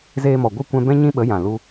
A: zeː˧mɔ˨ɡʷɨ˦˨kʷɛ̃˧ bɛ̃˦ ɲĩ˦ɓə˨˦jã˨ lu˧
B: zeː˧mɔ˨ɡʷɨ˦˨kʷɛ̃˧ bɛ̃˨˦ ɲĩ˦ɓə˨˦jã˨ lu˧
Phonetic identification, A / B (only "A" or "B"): A